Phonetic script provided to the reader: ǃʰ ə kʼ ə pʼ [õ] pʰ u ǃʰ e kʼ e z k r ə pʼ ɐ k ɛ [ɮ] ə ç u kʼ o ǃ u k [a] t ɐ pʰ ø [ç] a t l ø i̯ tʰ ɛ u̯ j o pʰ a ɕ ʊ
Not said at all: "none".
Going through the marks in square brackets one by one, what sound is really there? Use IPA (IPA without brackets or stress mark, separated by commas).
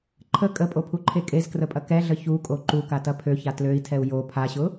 o, ɮ, a, ç